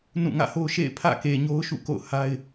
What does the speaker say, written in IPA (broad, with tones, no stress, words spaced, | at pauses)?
nũ˦˨ŋä̰˦˨ho˦ʊ̯ ʃḛ˦˨ɪ̯pʰä̰˦˨ ke˨ɲo˦ʊ̯ ʃṵ˦˨ ko̰˦˨ʊ̯ha˦ɪ̯